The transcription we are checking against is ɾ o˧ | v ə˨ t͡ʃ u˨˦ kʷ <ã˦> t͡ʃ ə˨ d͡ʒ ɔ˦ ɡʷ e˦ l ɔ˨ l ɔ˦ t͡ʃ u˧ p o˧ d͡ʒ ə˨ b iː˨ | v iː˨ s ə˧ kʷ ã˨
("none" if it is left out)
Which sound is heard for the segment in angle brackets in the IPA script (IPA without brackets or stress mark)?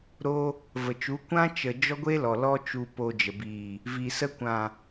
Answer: ã˦